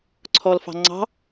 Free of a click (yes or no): no